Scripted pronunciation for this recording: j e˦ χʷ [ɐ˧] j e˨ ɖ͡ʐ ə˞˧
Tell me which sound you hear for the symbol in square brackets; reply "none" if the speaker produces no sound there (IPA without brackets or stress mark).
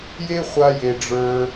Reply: a˧